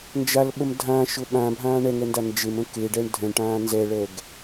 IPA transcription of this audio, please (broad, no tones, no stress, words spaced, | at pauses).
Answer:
nd͡ʒalɓəm dʱãʃʊ ɓãbʱãː ɳɛŋɛnda nd͡ʒemə̃ keɖɛɳ dʱə̃ɳʈãː nzɛɭɛɡ